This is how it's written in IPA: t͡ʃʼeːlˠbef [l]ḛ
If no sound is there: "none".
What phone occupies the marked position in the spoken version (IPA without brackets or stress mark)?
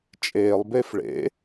ɭ